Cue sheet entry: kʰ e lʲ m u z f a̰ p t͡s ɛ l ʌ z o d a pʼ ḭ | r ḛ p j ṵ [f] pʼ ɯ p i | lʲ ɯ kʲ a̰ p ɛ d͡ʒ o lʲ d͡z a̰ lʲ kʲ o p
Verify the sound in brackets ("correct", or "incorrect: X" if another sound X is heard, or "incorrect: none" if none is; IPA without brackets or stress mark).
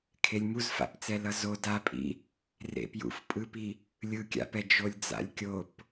correct